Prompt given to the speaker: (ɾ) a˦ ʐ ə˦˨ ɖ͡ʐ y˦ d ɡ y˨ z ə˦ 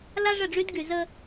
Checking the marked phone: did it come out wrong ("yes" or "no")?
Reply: yes